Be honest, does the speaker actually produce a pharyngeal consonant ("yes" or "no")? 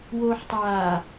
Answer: yes